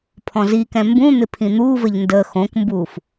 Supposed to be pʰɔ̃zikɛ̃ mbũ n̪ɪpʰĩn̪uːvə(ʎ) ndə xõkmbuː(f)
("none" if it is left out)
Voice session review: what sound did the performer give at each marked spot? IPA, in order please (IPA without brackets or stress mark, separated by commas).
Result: ʎ, f